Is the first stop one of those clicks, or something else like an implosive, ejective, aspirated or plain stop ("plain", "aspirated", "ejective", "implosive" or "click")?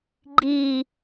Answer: click